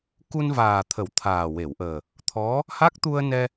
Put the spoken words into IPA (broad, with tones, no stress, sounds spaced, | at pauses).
k u˧ n v aː˨˩ t̪ʰ ə˨˩˦ w t̪ʰ aː˨˩ w e˨˩˨ w ʔ əː˨˩ | t̪ʰ ɔ˧˥ | h a˦˥ k̚ t̪ u˧ ə̯ n ɛ˧